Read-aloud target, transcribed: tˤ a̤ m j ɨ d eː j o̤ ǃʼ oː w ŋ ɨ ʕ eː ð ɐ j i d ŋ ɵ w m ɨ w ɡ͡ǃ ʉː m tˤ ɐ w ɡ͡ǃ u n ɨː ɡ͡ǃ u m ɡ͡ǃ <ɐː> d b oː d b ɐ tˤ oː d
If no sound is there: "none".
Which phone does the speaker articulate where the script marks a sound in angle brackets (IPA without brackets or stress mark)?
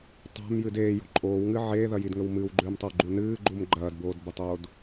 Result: ɐː